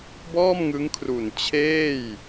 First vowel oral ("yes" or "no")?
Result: yes